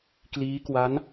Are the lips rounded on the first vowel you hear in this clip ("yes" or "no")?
no